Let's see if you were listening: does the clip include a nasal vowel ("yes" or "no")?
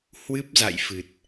no